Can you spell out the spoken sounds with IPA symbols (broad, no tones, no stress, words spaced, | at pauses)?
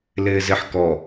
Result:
lɪːzɪħ kɔ